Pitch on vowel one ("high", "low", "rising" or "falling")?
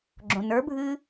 low